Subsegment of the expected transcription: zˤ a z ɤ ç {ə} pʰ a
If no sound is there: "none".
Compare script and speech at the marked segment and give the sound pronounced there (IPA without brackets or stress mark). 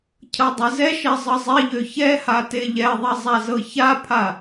a